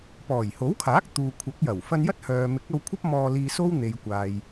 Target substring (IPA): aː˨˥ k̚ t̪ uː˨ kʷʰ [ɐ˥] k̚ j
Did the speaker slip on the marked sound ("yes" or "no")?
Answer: yes